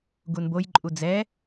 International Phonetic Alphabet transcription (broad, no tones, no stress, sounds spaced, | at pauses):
ɡ u n b o j ǃʼ u d͡z ɛ